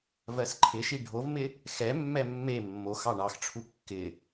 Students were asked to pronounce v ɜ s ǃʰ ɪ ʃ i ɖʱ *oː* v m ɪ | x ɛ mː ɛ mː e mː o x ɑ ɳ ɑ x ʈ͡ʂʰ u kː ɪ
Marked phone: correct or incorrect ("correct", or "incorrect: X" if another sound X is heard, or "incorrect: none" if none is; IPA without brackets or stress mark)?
incorrect: o